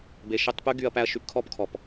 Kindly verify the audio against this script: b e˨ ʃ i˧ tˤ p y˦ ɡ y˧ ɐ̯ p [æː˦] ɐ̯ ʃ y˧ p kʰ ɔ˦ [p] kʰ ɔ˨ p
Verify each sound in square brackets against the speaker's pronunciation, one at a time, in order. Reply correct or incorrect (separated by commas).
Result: incorrect, correct